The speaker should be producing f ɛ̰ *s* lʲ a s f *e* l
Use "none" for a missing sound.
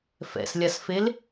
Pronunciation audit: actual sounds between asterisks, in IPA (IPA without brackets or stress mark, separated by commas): s, e